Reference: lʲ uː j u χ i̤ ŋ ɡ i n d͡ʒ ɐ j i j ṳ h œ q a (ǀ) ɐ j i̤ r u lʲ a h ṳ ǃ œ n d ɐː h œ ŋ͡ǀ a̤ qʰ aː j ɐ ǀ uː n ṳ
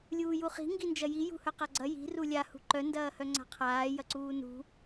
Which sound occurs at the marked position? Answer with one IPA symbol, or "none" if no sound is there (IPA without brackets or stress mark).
ɡ͡ǀ